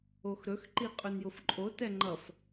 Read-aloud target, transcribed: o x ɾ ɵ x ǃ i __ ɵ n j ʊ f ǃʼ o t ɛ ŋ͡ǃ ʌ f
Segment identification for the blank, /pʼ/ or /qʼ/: qʼ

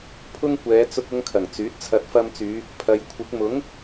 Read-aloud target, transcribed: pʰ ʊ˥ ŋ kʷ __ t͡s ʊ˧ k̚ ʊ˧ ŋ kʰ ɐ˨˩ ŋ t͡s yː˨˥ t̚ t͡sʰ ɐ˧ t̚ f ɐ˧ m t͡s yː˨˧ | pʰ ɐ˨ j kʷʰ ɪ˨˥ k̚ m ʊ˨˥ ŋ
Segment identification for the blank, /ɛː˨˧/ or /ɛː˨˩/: ɛː˨˧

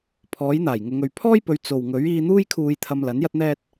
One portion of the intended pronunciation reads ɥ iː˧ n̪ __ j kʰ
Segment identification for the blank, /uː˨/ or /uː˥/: uː˥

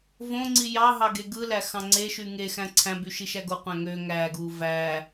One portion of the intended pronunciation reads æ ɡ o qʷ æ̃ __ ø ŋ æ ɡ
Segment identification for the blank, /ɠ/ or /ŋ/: ŋ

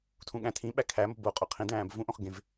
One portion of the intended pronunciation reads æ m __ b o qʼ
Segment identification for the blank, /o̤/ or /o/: o̤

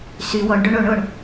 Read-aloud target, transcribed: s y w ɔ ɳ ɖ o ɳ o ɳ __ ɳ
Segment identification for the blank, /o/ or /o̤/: o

